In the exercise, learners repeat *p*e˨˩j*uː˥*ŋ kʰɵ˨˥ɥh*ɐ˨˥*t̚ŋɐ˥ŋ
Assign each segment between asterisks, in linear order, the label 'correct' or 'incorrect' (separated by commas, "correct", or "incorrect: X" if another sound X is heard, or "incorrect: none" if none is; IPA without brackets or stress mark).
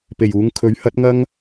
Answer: correct, incorrect: uː˨˧, correct